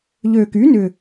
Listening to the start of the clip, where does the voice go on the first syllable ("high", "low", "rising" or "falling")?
low